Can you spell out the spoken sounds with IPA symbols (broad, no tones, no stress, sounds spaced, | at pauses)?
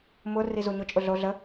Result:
m ʊ r i z u ɲ ʊ t͡ʃʼ ʊ ɮ o ɮ ə